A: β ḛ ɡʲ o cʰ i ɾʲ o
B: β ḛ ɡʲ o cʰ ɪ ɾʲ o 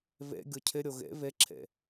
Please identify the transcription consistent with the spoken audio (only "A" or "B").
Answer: B